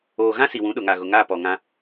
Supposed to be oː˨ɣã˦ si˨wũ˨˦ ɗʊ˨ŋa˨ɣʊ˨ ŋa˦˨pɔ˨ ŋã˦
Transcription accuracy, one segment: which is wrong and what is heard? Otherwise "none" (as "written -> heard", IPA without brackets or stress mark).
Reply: none